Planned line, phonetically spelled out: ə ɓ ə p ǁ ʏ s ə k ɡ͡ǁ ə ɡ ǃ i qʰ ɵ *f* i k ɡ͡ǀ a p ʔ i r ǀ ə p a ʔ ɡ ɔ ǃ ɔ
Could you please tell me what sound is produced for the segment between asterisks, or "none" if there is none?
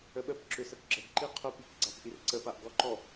p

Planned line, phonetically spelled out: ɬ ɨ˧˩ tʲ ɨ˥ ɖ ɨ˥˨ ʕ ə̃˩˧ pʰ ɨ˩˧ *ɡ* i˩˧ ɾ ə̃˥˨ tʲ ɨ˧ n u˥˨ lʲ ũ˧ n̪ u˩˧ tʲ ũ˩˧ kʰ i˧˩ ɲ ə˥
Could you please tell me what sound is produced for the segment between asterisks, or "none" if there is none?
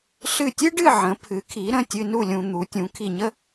kʰ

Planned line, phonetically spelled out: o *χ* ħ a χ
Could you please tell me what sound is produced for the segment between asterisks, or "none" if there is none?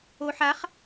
none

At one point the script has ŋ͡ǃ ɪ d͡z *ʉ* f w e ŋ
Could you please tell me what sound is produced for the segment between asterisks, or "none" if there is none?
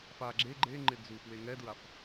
u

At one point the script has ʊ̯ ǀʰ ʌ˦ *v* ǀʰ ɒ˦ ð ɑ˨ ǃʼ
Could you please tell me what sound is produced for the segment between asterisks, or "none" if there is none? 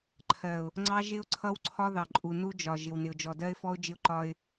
w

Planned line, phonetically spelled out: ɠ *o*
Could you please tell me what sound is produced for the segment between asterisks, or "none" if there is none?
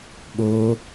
o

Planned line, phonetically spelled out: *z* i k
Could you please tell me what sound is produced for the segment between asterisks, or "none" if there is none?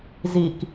z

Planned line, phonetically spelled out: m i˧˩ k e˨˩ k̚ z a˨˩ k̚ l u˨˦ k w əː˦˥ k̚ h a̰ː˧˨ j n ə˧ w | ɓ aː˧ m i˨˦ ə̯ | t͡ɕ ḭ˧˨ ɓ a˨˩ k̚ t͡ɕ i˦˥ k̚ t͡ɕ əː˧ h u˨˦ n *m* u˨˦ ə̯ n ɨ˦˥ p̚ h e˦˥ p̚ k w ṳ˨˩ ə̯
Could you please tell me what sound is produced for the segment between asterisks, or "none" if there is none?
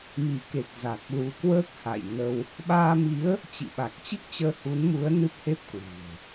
m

